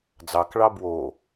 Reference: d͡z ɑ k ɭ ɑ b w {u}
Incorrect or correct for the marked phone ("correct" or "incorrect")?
incorrect